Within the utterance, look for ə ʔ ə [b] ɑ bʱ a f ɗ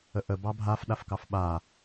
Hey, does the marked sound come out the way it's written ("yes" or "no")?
yes